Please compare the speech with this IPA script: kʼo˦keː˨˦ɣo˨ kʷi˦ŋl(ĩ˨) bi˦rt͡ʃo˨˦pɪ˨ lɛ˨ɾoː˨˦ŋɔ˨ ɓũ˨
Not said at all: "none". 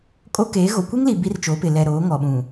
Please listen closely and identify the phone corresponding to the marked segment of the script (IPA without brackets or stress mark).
i˨